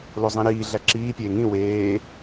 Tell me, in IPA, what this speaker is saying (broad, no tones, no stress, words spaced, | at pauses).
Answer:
lozˤĩɾiː ɮæǁiː pʲeːŋĩ weː